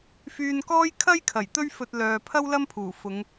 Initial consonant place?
labial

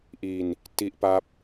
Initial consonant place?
glottal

